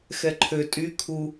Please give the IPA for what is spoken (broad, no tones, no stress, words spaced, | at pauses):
xɛǃʰø tʼy kʰu